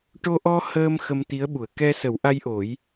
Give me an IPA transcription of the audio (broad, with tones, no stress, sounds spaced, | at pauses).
ʈ o˧ ʔ ɔ˧ h əː˧ m x ə˧ m t̪ i˧˥ ə̯ ɓ u˨˩˨ ə̯ k ɛ˧ s ə˨˩˦ w ʔ a˧ j ʔ o˨˩˦ j